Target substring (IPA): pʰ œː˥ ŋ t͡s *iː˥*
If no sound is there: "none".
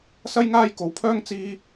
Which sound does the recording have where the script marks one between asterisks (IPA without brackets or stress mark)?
iː˥